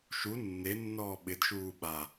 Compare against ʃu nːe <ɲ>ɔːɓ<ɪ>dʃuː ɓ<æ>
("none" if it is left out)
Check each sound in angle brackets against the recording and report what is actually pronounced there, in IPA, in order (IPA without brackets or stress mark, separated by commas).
nː, ɪ, a